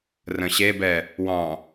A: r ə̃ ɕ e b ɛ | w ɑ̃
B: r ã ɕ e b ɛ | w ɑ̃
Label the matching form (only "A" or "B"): A